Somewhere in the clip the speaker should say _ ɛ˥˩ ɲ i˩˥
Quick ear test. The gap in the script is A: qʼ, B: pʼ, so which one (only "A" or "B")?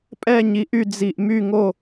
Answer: B